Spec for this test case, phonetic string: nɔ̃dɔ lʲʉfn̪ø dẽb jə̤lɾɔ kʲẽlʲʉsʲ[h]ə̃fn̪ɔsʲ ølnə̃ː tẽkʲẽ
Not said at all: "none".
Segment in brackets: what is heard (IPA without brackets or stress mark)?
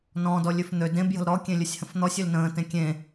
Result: h